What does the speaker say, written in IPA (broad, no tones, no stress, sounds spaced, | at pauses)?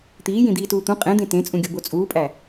t̪ iː j ĩ d̪ iː t uː t̪ ũ qʼ ẽ d̪ ẽ t ẽ t͡sʼ ũ ɡʲ o b o t͡sʼ uː pʼ æ